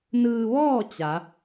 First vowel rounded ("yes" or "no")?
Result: no